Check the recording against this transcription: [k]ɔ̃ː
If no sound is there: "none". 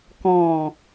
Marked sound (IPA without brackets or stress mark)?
k